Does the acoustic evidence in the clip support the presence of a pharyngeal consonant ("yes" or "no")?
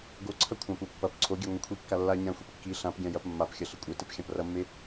no